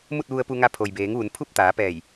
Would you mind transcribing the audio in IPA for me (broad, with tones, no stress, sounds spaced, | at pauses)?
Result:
m u˥˨ t̚ ʋ u˧ ə̯ p u˧ ŋ a˧ pʰ o˩ j b eː˩˧ ŋ ʋ u˩˧ n pʰ u˥˨ p̚ t̪ aː˩˧ p ɛː˧˩ j